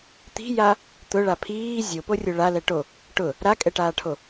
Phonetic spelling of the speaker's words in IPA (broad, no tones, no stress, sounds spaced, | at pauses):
t̪ i̤ j a | t̪ ʊ ɭ a pʰ iː zʲ o p o rʲ o ɭ a l ɛ ʈ o | ʈ ʊ | ɾ a kʼ ɛ ʈ aː ʈʰ o